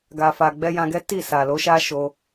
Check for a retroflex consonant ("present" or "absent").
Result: absent